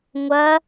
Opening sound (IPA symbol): ŋʷ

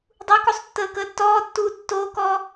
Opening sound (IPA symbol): dˤ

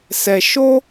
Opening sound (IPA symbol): s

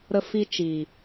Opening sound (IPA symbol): ɾ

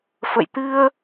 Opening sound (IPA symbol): f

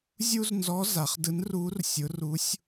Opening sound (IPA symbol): zʲ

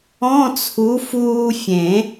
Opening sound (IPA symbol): ɔ̃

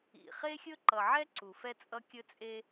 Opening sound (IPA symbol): ḭ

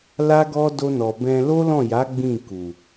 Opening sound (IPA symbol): l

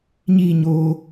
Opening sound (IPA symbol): ɲ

